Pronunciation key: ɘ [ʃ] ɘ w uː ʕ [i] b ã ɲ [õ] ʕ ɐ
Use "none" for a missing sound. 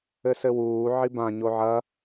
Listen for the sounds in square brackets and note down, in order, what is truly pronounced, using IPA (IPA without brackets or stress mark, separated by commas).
s, i, o